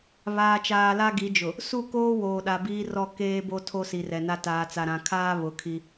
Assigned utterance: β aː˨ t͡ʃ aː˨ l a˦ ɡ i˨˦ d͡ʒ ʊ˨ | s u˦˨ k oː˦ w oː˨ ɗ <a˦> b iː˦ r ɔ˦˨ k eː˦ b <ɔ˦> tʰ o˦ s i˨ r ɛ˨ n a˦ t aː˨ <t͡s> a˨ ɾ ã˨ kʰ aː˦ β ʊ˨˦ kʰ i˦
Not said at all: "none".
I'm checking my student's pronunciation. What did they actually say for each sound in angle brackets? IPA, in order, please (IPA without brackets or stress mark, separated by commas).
a˨, o˦, t͡s